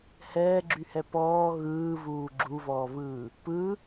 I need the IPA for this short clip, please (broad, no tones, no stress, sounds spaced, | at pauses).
h ɛː ɡ͡ǁ y h ɛ p ɔː ɣ ɯː v uː ɡ͡ǁ u v ɔː v ɯː | p ɯ